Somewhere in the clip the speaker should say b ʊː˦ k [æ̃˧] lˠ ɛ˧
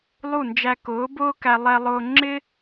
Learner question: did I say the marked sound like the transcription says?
no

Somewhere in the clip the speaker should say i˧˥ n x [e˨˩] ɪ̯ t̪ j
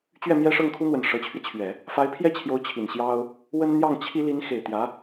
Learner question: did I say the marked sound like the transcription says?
yes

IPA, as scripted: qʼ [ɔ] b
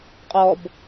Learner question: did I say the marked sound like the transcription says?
yes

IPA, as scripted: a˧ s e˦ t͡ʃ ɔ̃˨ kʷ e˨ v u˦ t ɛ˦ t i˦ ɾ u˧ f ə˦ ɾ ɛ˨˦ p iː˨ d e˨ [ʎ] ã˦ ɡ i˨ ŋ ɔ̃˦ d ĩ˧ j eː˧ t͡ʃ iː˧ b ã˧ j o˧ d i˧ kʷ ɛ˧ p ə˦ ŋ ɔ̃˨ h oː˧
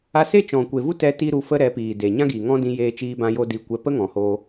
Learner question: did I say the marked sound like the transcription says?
no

